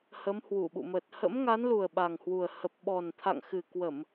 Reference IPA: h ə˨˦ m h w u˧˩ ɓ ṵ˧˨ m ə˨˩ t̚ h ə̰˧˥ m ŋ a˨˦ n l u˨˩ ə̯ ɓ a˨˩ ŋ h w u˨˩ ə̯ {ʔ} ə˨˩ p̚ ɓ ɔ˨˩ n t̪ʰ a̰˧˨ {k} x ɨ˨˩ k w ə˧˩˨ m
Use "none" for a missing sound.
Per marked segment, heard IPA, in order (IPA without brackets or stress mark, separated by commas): h, ŋ